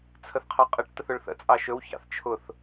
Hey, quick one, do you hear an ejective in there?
yes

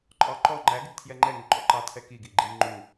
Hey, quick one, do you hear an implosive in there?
no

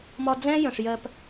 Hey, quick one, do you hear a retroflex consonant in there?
yes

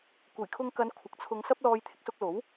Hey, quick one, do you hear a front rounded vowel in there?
no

